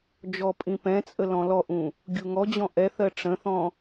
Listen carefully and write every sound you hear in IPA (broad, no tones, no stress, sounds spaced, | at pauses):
d͡ʒ ɔ pʼ ĩ p ɛ̃ t͡sʼ ə l ɔ̃ l ɔ ʔ ũ | ɡʲ u ŋ ɔ d͡ʑ ɔ̃ ʔ ɛ θ ɜ ʈ͡ʂ ə̃ θ ɔ̃